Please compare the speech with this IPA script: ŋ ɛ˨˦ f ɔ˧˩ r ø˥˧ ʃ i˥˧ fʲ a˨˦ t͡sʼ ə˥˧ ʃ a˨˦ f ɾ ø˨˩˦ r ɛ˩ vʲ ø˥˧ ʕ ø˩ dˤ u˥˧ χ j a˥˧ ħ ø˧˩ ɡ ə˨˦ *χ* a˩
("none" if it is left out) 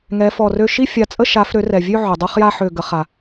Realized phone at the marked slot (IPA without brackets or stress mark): χ